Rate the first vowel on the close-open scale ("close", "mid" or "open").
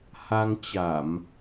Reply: open